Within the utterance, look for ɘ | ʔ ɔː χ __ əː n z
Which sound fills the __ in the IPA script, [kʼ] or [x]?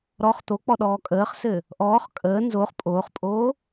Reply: kʼ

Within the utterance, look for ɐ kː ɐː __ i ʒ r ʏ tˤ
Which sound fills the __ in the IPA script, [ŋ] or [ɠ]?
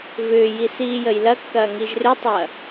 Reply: ŋ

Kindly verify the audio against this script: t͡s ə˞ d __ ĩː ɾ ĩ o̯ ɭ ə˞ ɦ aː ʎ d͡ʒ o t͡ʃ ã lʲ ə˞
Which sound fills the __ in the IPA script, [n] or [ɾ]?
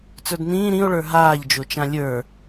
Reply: n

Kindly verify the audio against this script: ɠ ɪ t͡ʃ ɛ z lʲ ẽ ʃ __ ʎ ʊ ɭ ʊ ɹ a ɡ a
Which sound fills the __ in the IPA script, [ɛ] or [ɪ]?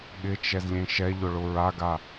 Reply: ɛ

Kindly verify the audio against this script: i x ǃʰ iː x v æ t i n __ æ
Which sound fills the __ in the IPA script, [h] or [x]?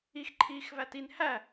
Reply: h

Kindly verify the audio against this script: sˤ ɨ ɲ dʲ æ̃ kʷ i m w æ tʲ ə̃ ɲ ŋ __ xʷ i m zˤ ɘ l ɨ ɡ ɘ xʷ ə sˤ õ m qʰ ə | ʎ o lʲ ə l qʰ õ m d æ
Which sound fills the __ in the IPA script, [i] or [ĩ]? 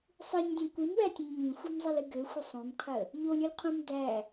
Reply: ĩ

